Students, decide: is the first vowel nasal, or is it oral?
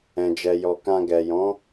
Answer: nasal